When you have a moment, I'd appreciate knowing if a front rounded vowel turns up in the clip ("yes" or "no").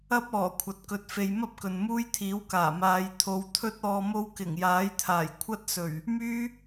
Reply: yes